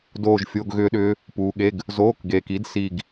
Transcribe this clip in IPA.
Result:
d oː˦˨ ʒ fʲ o˧˥˧ ɡ ɣ ʏː˦˥ ɗ ʏː˦˥ | p uː˨ ɠ e˧˥˧ ɡ | z oː˧˥˧ k ɡ eː˨ k i˨˥ d s i˦˨ ɡ

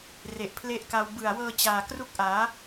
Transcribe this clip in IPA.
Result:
r e˨˩ ʔ pʰ l e˦˥ ʔ k a˧ w b ɯ˨˩ a̯ w ɤː˧ t͡ɕ aː˨˩ k r u˦˥ k̚ ʔ aː˩˦

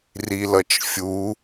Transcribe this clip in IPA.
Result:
r i l ʌ t͡ʃ fʲ u

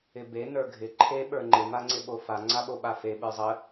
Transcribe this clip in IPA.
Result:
ɪ b e n ə˞ ɡʱ ɪ ǃʰ e ɓ ə˞ ŋ͡ǃ ɪ m a ŋ͡ǀ ɪ ɓ o f a ŋ͡ǀ a ɓ o ɓ a f e ɓ ə˞ zˤ ə

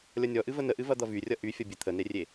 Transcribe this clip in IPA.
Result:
lʲ ʌ nʲ ɔ ʔ ɨ v ə n ə ʔ ɨ v ɐ d̪ ʌ v y rʲ ʌ ʔ y fʲ ʌ bʲ ɨ t̪ʰ ə n e rʲ e

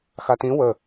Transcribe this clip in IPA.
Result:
x a t ĩ w ə

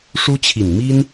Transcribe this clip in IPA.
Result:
ʂ u˥ t͡ɕʰ i˨˩ n m i˥ n

